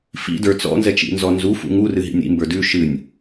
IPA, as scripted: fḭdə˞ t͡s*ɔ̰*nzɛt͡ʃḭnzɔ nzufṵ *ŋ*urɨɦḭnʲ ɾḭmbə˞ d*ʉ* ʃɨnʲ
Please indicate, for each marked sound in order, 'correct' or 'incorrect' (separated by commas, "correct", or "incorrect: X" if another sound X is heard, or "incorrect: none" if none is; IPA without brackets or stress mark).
correct, correct, correct